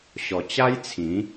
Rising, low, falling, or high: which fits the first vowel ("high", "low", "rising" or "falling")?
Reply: low